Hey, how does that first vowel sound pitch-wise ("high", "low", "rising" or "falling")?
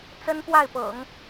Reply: high